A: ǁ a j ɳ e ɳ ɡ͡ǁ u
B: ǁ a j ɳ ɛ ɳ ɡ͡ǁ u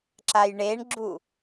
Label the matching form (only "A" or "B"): A